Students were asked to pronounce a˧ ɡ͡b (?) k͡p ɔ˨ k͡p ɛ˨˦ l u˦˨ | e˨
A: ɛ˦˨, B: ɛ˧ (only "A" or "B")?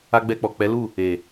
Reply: B